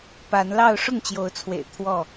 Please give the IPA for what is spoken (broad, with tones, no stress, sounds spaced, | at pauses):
p a˨˦ n l ɑ˥˨ ʊ̯ ʂ ʊ˥˨ ŋ t͡ɕ j o˨˦ ʊ̯ t͡sʰ w ḛ˨˩ ɪ̯ t̪ʰ w ɔ˥˨